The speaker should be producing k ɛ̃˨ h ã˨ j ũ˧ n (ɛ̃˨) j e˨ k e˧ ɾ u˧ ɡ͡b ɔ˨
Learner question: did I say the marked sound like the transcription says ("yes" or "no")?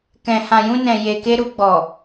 yes